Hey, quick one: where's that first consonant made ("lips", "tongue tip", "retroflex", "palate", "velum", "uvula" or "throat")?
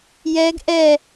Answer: palate